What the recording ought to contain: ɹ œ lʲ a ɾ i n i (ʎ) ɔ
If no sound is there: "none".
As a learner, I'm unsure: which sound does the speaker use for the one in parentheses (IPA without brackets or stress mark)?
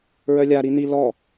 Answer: l